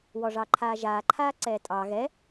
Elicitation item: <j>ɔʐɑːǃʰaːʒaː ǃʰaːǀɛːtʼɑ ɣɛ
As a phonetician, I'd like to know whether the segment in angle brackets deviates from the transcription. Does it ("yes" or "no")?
yes